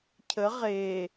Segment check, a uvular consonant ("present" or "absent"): present